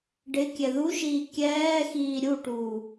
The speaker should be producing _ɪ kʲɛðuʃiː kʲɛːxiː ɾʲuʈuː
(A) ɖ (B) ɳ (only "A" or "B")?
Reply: A